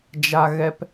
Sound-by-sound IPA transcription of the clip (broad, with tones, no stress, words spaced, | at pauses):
d͡ʒa˧ɣɛ˧p